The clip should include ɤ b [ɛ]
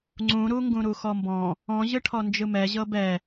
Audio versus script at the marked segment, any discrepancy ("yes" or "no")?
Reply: no